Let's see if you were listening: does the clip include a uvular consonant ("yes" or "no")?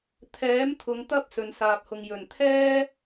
no